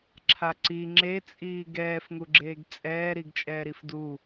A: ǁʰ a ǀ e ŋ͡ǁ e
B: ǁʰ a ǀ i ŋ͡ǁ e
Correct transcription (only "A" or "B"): B